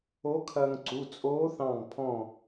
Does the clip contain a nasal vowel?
yes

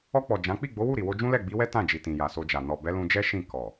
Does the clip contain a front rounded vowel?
no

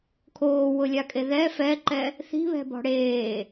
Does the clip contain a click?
yes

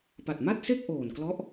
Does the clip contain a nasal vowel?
no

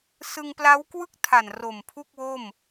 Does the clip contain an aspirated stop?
yes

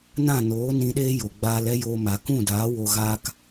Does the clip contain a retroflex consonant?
no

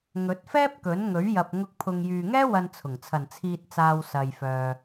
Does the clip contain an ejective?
no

